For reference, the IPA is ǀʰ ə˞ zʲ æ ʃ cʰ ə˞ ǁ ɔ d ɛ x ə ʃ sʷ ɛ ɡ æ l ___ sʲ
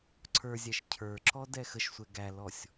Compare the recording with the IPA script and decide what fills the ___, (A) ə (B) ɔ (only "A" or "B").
B